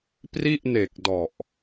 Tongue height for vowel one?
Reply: high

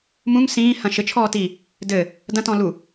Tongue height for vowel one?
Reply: high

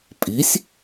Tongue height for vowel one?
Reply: high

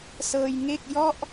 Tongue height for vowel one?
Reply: mid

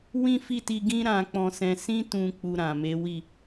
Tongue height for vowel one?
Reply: high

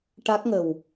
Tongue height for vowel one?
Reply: low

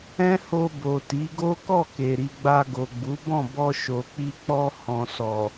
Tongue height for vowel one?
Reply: mid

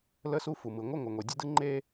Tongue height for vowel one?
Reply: mid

